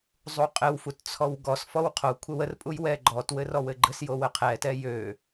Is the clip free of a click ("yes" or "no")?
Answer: no